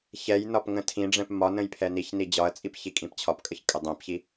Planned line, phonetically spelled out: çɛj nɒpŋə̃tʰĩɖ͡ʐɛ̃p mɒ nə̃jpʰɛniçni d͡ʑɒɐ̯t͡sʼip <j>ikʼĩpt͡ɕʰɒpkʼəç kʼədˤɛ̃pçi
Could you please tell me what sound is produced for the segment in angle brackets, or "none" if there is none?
ç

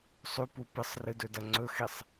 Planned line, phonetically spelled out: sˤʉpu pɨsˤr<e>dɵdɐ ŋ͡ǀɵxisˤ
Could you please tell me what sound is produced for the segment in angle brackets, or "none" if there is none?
ɨ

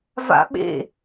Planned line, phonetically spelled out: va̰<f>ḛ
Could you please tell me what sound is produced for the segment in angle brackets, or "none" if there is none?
ɓ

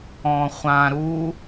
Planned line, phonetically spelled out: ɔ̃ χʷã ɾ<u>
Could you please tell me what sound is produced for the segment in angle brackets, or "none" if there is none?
u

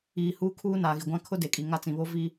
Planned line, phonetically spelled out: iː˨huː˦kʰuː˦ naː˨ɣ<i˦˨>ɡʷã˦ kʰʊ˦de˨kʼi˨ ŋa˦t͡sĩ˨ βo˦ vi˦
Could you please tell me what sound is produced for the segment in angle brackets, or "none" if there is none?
i˨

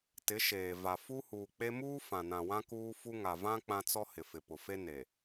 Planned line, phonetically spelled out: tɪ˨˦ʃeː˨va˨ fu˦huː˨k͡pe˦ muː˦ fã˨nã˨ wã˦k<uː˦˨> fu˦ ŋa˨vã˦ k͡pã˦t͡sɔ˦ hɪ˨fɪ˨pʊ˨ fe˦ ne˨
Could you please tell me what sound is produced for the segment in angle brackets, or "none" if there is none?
uː˦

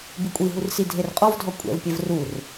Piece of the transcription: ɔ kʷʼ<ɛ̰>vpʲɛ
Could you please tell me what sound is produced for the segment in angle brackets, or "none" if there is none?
ɛ̰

